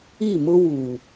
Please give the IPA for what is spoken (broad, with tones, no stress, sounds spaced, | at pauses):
i˦˨ m ʊ˦ w u˨